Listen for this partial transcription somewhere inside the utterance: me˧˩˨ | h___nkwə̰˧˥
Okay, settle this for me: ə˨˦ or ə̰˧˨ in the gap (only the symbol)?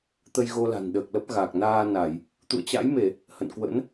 ə̰˧˨